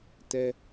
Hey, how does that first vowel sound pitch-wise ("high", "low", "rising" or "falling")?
low